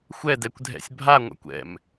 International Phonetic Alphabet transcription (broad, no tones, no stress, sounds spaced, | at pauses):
xʷ ɛ d ɛ kʷ dʱ ɛ̰ sʲ bʱ a ŋʷ a̰ kʷ ɛ̰ m